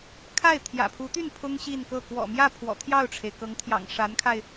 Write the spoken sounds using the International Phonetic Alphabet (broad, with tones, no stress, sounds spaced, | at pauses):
kʰ a˥˩ ɪ̯ t̪ʰ j ä̰˨˩ pʰ u˧˥ t̪ y˥˩ n pʰ ʊ˥ ŋ ɕ i˥˧ n k ɤ˥˩ k w ɔ̰˨˩ m j ä˥˩ pʰ w ɔ̰˨˩ t̪ʰ j ɑ˥˩ ʊ̯ ʈ͡ʂʰ e˩ ɪ̯ k ɤ˧˥ ŋ t̪ʰ j ɑ̰˨˩ ŋ ʂ a˧˥ n kʰ a˧ ɪ̯